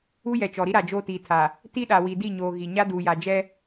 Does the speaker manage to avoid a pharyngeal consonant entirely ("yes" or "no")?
yes